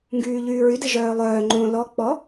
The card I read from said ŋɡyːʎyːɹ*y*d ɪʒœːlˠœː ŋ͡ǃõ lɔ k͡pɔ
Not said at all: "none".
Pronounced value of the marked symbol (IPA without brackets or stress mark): y